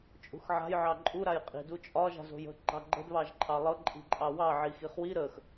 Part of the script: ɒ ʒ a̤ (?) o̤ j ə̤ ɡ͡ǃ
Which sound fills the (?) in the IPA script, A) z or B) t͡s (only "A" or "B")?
A